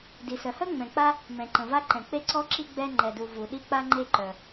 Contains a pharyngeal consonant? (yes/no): no